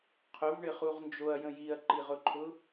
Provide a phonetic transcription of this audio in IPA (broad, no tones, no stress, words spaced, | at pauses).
qʰʊvɳɪχuʁ nd͡ʒoɐ̯jə̃ jiɐ̯ǃiʁʊǃʰʊ